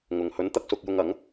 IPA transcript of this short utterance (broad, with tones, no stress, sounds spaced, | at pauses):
ŋ ʊ˨ ŋ h ɵ˨˧ n t̪ ɐ˧ k̚ s ʊ˧ k̚ j ʊ˧ ŋ ɐ˨˥ ŋ